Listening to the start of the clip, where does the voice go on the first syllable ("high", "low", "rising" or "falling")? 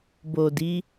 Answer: low